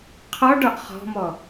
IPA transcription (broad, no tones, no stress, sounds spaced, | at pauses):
qʰ ɔ ɖ ɒ ʔ χ ɔ̤ m ɔ